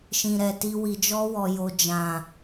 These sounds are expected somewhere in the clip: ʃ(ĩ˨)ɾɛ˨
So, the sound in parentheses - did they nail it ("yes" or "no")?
yes